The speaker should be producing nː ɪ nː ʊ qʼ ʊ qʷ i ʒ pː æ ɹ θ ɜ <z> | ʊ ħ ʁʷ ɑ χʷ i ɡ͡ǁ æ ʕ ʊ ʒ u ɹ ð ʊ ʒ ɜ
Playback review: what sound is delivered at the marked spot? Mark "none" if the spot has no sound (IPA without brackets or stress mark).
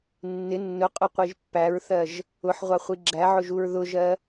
ʒ